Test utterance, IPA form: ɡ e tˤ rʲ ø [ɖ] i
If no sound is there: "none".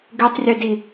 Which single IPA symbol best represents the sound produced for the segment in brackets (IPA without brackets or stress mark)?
d